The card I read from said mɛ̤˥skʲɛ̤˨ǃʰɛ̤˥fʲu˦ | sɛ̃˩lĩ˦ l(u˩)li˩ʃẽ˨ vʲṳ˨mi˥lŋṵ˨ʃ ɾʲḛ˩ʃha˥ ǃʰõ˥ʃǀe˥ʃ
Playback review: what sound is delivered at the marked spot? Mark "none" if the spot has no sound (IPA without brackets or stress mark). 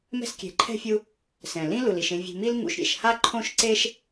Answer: u˩